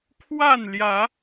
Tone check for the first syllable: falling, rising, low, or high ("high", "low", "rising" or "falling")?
falling